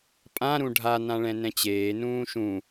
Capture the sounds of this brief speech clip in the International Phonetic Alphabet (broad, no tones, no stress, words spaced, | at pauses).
pʼã ɾũɖʱa nãɭɛ̃nɛ̃t͡ɕeː nũːʃũ